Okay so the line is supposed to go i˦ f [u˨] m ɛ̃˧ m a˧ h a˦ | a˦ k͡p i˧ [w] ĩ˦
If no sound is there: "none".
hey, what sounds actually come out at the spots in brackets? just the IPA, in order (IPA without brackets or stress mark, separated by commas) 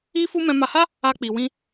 u˦, w